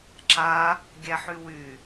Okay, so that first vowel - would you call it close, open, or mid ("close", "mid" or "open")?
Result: open